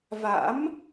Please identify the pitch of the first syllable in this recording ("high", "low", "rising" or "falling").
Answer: rising